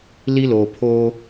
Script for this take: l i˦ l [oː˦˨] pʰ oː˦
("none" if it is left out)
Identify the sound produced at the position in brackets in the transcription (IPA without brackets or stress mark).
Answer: oː˨